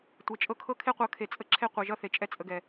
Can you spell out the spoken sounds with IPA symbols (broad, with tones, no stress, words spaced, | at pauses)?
tʷe˨t͡ʃʼɤ˧kʰɤ˦ kʰe˦qʷɤ˨˦kʰe˨ t͡sʼə˦ǁʰe˦qʷɛ˨ʒʌ˦ θe˨t͡ʃʼɛ˦t͡sʼə˧ɡɛ˨